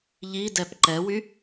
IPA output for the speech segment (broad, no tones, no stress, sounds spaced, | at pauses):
ʎ i d ɛ p ǃ ɛ w y